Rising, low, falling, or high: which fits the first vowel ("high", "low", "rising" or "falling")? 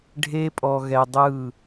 high